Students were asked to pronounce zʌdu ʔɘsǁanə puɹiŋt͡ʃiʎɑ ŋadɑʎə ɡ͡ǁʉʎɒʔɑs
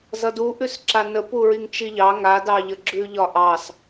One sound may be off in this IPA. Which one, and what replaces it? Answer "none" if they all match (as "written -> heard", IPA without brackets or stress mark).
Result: ɘ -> ʉ